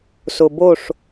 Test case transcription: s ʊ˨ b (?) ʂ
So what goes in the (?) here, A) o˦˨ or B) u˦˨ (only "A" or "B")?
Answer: A